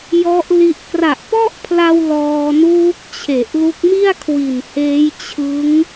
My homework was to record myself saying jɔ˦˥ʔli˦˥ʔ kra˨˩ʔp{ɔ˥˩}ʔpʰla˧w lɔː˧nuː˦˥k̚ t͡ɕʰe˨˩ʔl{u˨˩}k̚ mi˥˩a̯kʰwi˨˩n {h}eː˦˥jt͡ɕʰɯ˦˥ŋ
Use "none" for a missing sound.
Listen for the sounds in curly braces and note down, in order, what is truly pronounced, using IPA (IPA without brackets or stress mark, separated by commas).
ɔ˥˩, u˦˥, h